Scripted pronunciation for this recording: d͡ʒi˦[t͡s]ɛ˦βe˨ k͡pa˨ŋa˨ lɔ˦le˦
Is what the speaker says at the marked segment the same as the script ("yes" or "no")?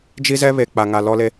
no